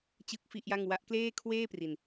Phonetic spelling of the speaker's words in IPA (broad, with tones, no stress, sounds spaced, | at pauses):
t͡ɕ ɯ˥˩ k̚ f i˥˩ ʔ j a˥˩ ŋ w a˦˥ ʔ k l eː˥˩ kʰ w eː˥˩ p r i˧ n